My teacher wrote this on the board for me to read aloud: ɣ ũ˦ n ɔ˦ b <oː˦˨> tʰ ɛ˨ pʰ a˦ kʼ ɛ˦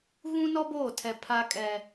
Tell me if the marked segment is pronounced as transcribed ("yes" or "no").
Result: yes